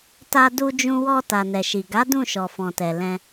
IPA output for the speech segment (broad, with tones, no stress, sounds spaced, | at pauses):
t a˧ d u˧ d͡ʒ ũ˧ w ɔ˧ t a˨ n ɛ˨ ʃ i˨ ɡ a˨˦ d ũ˦˨ ʃ ɔ˨ f ɔ̃˨ t ɛ˨ l ɛ̃˧